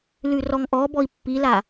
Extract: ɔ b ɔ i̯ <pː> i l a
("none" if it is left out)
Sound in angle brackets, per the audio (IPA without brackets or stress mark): pː